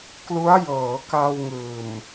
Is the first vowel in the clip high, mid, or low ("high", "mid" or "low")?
high